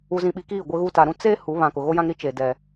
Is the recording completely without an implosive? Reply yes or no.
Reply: no